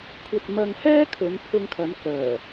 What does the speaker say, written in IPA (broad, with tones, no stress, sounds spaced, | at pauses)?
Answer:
kʷʰ ɐ˧ t̚ m ɐ˧ ŋ h ɛː˥ kʰ ɵ˨˧ n pʰ ʊ˧ ŋ kʰ ɐ˨˥ n k œː˨˩